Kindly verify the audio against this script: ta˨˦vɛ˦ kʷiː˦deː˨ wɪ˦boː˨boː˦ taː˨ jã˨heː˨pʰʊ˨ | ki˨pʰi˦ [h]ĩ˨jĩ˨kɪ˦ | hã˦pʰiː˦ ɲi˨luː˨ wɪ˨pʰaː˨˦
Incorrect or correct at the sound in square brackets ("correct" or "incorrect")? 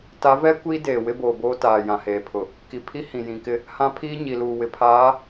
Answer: correct